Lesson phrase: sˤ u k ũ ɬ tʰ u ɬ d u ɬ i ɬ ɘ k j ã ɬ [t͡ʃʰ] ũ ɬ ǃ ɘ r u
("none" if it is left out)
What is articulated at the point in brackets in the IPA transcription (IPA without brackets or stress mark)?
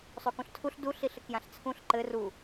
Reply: t͡sʰ